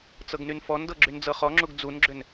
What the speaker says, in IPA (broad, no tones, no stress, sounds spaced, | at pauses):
t͡s ɤ ɡ n y n f ɔ n d ɤ ɡ͡ǁ y n d͡z ɤ χ ɔ ŋ͡ǁ u ɡ d͡z u n ɡ͡ǁ ʏ n